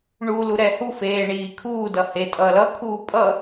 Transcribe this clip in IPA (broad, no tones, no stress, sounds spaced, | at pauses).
ɳ u l u ɾ ɛ h u f eː ɳ iː kʰ uː d ʌ h e tʼ ʌː l ʌ kʰ uː pʼ ʌ